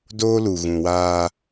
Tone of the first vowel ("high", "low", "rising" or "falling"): high